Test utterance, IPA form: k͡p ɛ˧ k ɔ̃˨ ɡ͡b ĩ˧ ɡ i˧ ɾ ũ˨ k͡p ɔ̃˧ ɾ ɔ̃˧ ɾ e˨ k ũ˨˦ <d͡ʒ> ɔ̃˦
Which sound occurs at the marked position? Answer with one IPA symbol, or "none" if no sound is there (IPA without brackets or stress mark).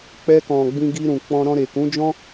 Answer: d͡ʒ